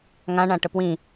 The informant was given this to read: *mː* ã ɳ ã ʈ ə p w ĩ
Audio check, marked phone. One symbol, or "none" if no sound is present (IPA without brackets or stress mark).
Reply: ŋ